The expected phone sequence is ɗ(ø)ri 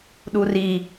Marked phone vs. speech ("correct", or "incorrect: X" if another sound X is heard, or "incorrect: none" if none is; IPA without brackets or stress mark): incorrect: u